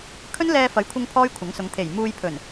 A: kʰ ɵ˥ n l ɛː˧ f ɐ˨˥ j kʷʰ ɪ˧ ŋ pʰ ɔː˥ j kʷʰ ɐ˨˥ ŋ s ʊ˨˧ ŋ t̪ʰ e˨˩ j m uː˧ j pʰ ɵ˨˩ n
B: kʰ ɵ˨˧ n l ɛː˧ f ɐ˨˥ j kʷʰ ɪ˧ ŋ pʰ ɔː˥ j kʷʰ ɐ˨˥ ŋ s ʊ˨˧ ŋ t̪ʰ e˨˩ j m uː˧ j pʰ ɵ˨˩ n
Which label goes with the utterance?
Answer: A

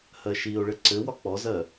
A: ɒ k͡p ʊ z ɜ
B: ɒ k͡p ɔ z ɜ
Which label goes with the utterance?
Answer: B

